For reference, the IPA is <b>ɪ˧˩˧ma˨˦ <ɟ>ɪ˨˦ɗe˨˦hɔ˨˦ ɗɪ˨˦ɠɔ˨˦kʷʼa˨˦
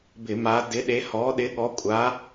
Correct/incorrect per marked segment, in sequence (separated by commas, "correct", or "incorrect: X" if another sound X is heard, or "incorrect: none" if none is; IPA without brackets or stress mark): correct, incorrect: d